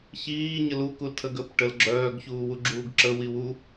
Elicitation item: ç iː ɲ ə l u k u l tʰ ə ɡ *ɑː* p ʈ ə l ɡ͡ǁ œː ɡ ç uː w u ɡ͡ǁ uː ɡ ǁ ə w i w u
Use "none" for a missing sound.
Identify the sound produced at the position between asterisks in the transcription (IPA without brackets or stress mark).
əː